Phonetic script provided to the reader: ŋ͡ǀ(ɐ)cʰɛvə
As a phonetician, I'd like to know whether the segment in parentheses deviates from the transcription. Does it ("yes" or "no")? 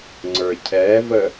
yes